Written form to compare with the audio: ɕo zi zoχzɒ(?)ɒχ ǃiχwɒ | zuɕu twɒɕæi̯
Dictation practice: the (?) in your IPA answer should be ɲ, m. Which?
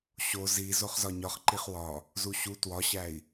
ɲ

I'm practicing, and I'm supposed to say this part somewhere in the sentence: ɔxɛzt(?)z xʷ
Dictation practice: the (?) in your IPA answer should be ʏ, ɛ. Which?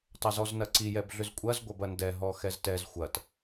ɛ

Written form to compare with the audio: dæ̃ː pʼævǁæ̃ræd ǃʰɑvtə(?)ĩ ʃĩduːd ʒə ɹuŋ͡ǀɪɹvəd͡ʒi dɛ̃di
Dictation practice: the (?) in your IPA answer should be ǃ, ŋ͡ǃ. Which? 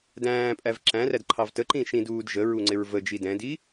ǃ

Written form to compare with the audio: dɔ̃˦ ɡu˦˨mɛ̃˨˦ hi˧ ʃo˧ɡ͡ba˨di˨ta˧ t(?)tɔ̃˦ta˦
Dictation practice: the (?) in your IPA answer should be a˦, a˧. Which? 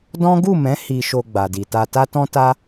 a˦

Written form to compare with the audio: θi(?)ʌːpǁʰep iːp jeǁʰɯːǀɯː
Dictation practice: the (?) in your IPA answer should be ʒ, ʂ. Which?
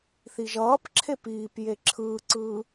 ʒ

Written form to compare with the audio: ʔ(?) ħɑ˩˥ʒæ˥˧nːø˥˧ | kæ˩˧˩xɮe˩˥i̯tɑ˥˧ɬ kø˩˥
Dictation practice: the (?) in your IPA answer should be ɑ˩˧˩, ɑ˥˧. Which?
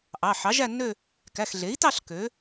ɑ˩˧˩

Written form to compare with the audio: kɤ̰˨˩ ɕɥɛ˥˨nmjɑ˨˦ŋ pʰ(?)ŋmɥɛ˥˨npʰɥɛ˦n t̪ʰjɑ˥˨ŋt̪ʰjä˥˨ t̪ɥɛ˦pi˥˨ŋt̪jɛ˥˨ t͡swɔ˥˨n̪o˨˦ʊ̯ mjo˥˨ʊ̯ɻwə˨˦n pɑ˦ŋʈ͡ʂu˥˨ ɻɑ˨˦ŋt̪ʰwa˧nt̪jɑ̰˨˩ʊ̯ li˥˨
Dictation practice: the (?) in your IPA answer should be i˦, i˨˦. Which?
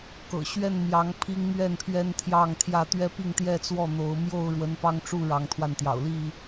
i˦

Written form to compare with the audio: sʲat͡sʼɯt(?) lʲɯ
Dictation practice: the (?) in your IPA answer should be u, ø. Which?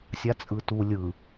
u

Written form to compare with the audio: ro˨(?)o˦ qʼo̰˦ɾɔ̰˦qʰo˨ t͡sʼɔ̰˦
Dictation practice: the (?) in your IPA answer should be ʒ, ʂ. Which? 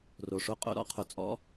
ʂ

